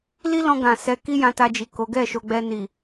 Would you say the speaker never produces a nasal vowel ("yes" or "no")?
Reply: no